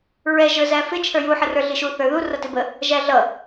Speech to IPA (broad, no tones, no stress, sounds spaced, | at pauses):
ɹ ɛ ʒ ə˞ z æ f ɪ t͡ʃʰ ə˞ j u ħ ə r ə˞ ɮ i ʃ u θ ə˞ ð u r ʌ t ɪ b ə | ʒ æ ɮ ʌ